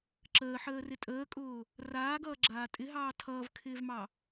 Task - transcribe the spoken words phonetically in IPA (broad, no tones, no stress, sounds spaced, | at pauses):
ǁ əː ħ əː r ɪ tʼ əː kʼ ʊː | r aː ɡ ʌː ɡ͡ǁ aː tʼ ɪ ɦ ɑː tʰ ʌː v kʰ ɪː v m ɑ